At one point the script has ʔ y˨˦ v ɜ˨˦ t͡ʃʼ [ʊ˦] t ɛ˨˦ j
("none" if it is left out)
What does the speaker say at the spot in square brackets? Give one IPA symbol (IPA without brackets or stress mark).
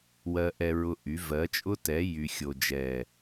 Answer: ʊ˦